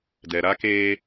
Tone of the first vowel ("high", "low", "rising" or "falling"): low